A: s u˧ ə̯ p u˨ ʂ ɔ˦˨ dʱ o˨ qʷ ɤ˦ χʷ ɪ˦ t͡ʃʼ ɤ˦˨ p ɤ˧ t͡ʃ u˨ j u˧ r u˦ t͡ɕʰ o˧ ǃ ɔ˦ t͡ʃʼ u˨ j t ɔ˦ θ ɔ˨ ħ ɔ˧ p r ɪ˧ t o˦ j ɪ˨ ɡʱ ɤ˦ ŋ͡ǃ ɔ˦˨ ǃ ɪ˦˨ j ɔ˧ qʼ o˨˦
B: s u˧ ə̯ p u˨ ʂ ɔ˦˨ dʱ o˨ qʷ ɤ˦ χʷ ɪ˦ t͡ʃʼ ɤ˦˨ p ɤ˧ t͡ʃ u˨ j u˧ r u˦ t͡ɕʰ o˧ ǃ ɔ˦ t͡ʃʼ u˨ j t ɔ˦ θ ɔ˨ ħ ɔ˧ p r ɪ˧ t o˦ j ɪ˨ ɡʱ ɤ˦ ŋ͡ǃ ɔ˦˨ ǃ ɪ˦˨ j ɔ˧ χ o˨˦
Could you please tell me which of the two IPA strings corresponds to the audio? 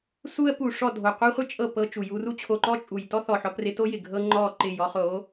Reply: B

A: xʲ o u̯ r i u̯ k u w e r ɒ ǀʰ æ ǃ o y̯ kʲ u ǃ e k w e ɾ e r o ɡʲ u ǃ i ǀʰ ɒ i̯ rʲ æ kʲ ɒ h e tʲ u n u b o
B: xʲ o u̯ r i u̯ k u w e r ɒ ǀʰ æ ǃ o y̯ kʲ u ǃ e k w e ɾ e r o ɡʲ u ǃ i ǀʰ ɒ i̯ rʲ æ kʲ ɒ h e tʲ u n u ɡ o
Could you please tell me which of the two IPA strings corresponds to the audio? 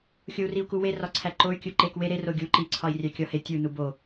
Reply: A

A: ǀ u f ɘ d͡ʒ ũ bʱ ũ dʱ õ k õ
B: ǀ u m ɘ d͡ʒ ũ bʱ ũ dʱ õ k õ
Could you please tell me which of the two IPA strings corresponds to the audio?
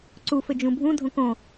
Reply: A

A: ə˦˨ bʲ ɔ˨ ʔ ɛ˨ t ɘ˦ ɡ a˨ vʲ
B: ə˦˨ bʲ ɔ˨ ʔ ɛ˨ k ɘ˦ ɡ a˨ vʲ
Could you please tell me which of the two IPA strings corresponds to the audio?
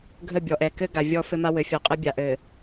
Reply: B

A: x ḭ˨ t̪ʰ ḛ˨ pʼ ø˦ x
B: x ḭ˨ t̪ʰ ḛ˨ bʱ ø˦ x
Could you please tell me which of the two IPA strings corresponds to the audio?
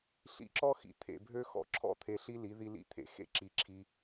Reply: B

